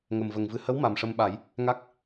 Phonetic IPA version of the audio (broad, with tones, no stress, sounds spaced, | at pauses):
ŋ ə˨˩ m v ə˨˩ ŋ v ɨ˨˩ h ə˧˥ w m a˨˩ m ʂ ə˧ m ɓ a˨˩˦ j | ŋ a˦˥ k̚